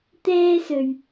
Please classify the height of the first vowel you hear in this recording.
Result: mid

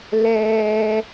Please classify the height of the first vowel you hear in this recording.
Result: mid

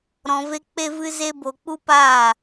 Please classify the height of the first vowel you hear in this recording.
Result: mid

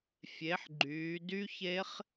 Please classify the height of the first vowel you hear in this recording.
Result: mid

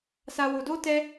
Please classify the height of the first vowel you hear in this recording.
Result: low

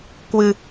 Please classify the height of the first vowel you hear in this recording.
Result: high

